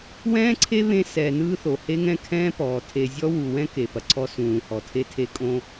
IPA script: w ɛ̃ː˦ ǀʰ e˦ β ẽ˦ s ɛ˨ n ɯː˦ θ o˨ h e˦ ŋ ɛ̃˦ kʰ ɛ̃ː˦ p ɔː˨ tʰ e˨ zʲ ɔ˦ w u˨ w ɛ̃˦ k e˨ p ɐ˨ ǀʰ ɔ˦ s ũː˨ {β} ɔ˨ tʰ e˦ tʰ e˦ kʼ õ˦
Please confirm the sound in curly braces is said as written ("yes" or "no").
no